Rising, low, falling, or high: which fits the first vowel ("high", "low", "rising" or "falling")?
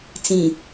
low